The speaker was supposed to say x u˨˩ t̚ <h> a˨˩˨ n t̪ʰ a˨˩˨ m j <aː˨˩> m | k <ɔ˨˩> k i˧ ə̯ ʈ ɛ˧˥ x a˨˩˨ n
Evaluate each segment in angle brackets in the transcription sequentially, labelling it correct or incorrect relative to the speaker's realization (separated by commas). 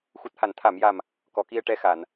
correct, incorrect, correct